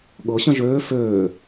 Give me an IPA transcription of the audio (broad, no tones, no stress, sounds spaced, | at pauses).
ɠ ɤ ɕ ə̃ ʒ øː f øː